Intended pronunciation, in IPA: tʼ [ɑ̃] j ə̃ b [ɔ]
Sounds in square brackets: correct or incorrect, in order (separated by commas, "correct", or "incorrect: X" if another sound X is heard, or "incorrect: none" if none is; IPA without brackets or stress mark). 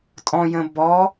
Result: incorrect: ɔ̃, correct